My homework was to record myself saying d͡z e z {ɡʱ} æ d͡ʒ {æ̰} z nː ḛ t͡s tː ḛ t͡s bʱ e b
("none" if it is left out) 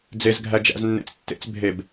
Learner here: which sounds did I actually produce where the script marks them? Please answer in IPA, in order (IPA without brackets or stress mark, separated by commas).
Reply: ɡʱ, æ̰